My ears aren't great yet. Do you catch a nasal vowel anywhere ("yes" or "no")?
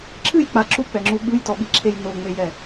no